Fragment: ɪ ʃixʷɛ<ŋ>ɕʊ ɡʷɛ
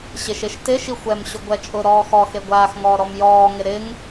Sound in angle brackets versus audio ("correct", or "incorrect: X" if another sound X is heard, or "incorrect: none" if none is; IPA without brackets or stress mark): incorrect: m